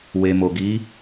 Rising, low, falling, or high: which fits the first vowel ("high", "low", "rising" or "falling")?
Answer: low